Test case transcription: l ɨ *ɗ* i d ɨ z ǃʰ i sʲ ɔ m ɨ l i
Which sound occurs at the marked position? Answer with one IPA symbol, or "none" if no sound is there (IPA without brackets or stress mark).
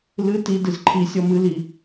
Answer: t